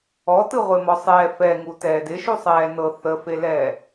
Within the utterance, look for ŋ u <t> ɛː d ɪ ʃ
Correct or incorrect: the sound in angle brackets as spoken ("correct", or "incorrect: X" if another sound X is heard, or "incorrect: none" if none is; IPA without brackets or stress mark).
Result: correct